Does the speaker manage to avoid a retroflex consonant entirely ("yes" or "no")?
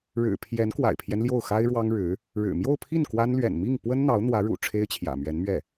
no